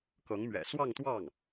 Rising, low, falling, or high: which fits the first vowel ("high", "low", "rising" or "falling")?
rising